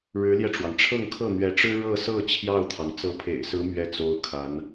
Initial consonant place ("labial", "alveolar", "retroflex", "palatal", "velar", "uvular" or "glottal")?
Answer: retroflex